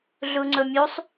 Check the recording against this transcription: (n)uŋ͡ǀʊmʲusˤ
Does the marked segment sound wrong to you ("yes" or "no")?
yes